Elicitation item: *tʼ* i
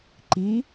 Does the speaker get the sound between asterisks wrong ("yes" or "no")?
yes